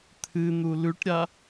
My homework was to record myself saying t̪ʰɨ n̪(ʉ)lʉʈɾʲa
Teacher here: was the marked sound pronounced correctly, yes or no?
no